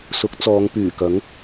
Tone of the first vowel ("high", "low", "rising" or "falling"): rising